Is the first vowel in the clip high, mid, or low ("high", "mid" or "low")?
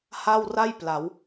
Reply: low